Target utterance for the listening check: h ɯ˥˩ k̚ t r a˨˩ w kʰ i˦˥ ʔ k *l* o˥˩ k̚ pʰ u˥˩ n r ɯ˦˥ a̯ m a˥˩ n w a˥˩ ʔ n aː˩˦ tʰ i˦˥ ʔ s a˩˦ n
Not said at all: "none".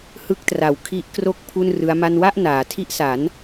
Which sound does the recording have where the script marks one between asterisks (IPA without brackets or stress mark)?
r